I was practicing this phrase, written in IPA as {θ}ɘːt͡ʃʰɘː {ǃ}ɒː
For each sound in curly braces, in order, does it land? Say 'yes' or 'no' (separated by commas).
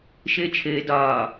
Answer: no, no